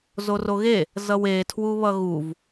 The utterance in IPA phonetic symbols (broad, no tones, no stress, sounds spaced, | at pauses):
z o r o ɣ e | z ʌ w e tʰ w u β ʌ ɣ u v